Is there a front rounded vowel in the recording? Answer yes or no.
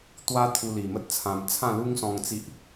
no